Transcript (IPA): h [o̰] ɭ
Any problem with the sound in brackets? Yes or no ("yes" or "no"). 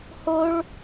yes